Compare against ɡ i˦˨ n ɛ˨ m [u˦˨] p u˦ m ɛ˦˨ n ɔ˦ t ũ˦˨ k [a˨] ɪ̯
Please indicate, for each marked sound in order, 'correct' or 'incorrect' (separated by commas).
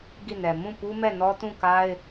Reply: incorrect, incorrect